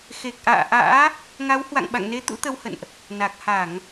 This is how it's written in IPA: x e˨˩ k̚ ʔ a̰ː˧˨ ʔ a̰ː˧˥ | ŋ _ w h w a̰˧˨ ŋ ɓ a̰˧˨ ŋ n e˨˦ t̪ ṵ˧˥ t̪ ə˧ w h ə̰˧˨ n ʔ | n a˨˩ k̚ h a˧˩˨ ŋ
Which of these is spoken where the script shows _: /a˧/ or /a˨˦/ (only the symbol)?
a˨˦